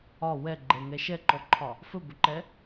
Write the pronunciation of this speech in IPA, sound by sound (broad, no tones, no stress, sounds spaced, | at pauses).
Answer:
ɒ w ɛ ɡ͡ǃ ɛ ŋ ɛ ʃ ɛ ǃ ɔ ǃʰ ɒ | f ɵ b ɵ ǃ ɛ